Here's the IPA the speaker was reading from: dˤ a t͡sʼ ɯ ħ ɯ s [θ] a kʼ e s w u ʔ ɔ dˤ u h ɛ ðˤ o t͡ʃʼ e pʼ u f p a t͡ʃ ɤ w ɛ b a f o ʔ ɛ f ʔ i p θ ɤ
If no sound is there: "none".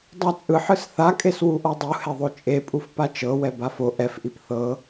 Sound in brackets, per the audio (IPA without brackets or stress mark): θ